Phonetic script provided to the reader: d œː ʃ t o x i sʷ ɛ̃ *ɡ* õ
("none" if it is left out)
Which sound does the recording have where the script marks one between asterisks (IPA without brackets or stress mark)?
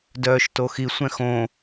x